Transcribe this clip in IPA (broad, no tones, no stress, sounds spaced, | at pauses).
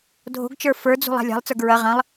dʱ o̤ ɡ t͡ʃ ə˞ f ə˞ d͡z ṳ lˠ a̤ lʲ a̤ lˠ t͡s ə˞ ɡ ɹ ɐ ʁ ɐ̃ lˠ